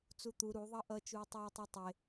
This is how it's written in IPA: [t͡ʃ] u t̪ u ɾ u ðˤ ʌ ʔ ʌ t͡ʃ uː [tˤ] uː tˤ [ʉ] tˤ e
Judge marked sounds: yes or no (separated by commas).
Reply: no, yes, no